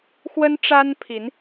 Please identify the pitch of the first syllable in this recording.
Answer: high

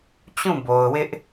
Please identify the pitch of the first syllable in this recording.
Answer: falling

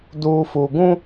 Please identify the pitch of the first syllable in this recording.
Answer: low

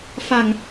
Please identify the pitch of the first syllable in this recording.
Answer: low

